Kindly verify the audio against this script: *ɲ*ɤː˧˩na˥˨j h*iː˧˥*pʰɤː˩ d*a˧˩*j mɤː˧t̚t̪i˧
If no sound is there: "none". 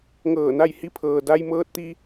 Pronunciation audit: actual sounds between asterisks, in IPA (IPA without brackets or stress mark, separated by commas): ŋ, i˧˥, a˧